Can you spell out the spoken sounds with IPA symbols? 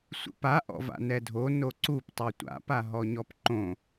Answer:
sʷ ḭ p a ʔ ɔ̰ v a̰ n ɛ dʱ o n o ǀ u p tˤ o tʷ a̰ p a ɦ ɔ ɲ ɔ p ǃ õ

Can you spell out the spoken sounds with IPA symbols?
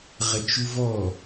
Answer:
ʁ ə t͡ʃ u v ɔ

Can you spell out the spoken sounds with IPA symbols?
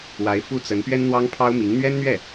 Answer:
w a˧˥ ɪ̯ f u˥ t͡s ə˧˥ n p ɥ ɛ˥ n n̪ w ɑ˥ ŋ pʰ ɑ˥ ʊ̯ m i˧˥ ŋ n̪ ɥ ɛ˥ n n̪ ɥ ɛ˥˩

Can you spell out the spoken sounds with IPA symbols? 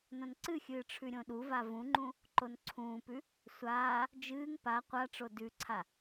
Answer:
n õ n ǀ ɨ xʲ ɨː ʈ͡ʂʰ ʉ ɾʲ õ ɗ u v a v ũ ŋ͡ǃ ũ | ǃ o n ǀʰ ũː p ʉ | sʷ aː | d͡ʒ ɨː ŋ p a qʷ a ʈ͡ʂ o d ʉ ǀʰ a

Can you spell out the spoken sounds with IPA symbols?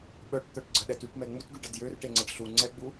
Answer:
ɓ œ ʈ t̪ œ ʈ ɡ͡ǀ ə ɗ ɛ t y ʈ m ɛ ŋ͡m u t ɡ y ɖ ə d j ø r ʈ e ŋ͡ǀ ə ɖ ɬ u ŋ͡ǀ ɛ ɡ͡b u

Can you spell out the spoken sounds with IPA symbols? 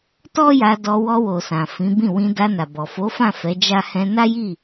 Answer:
t ɔ˦ j a˧ d ɔ˧ w ɔ˧ w o˨ s ã˨ f ĩ˨˦ b ĩ˦˨ w ĩ˧ d a˧ n a˨ b ɔ˨ f o˨˦ f ã˦˨ f ɛ˨˦ d͡ʒ a˦ h ɛ̃˧ n a˦ j i˦˨

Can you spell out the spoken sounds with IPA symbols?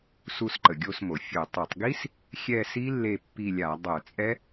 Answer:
s u˦˨ s ǃ ə˩ ɡʲ o˦˨ s m o˩ fʲ o˧˩˧ tˤ ø˧˩˧ tˤ ɡ i˦˥ s | xʲ ɛ˦˨ s i˦˥ lː e˦˨ pː i˦˨ lʲ a˧˩˧ dˤ œ˧˩˧ t͡sʼ ɛ˦˥

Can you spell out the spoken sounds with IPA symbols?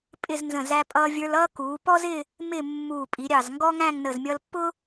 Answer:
pʼ ɪ˥˧ z n z ə̃˧˩ z æ˧ pʼ ʌː˧ vʲ ə˞˧ l ʌː˥ k uː˩˧ p ɔ˥ z ɪ˥˧ | m ɪ˥˧ mː uː˧˩ pʼ i˩˧ ɾʲ ɑ˧˩ z ŋ ɡ ɔ˥ ŋ æ̃˥˧ ŋ n ə˧˩ z mʲ ʌ˧ l pː ʊ˥

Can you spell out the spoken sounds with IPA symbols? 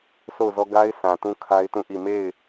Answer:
sʰ o˦˨ ʊ̯ z ɔ˦ ɡ a˦ ɪ̯ s ã˨ t ũ˦ kʰ a˦ ɪ̯ t ũ˦˨ ʔ i˦˨ m e˦˨ ɪ̯

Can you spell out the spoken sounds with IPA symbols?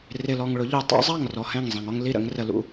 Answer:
r ɪ˨ l ɔ˨ ŋ ɭ ʊ˨˦ ʎ u˨ tˤ ɑ̰˦ zˤ ɑ˦˨ ŋ r ɔ˨ h ɛ̃˦˨ ŋ zˤ ɛ̃˨ ŋ ɔ˦ ŋ l i˦ ɾ ə̰˨˦ ŋ r ə˨ l ṵ˨

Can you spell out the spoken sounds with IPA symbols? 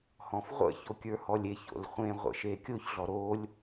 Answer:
h ɔ̃ f ʁʷ ə̰ ç o kʲ ə˞ h ɔ lʲ e ç o̰ l χʷ ẽ ʁʷ ə̰ ʃ e kʲ o ç ɮ ɔ ɾ o lʲ

